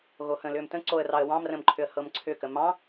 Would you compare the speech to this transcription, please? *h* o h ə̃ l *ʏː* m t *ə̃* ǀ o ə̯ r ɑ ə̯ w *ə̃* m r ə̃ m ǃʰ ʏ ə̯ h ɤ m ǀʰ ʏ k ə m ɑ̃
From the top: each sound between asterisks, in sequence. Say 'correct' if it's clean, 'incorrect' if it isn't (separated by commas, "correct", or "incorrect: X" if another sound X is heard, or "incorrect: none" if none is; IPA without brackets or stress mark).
incorrect: ɣ, correct, correct, incorrect: ɑ̃